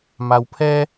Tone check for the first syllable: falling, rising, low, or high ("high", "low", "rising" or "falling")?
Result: low